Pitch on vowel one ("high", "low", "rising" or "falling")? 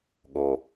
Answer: low